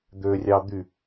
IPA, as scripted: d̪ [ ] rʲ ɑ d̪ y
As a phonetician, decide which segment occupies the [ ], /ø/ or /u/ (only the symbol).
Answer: ø